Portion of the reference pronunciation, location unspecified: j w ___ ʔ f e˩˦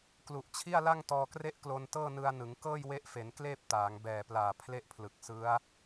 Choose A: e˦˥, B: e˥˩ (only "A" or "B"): A